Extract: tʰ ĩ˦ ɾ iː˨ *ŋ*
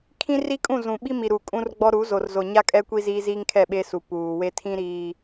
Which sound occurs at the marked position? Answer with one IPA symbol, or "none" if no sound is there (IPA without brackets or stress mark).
none